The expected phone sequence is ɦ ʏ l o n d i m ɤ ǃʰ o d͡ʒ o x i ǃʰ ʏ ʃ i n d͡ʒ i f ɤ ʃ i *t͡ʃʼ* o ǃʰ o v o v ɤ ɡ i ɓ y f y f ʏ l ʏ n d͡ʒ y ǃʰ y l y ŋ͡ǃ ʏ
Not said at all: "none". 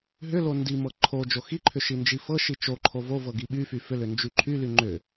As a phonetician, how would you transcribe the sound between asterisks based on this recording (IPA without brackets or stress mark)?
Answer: t͡ʃ